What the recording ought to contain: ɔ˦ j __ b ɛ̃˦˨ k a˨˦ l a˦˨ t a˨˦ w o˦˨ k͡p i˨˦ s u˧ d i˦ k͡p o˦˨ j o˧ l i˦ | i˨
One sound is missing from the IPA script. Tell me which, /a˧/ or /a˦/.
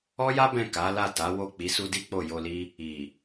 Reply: a˦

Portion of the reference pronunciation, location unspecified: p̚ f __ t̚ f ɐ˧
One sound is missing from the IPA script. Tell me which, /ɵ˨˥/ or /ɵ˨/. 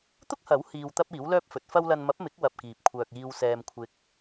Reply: ɵ˨˥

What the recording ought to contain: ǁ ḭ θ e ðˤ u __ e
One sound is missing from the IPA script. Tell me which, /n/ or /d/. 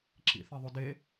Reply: d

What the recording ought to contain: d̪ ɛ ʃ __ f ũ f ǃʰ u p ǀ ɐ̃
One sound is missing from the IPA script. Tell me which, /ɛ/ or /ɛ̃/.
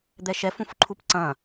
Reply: ɛ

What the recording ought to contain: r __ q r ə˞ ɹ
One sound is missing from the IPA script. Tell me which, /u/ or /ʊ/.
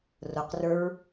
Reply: ʊ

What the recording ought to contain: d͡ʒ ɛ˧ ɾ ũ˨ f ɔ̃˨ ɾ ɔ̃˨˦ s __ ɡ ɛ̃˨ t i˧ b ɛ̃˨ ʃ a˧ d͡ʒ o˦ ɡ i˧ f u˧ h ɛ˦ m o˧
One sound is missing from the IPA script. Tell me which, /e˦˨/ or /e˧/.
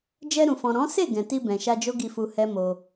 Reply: e˦˨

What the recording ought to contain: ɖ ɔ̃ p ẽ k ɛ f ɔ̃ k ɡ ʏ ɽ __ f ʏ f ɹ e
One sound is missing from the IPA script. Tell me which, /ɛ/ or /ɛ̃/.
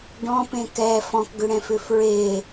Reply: ɛ̃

